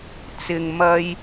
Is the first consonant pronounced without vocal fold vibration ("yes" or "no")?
yes